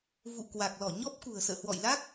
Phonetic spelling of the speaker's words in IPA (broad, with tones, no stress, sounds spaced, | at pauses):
v ṵ˧˨ k w a˨˩ k̚ l ɔ˧˩ ɲ ɔ˦˥ p̚ k ṳ˨˩ ə̯ s ə̰ː˧˨ h w ɔ̰˧˨ j l a˦˥ k̚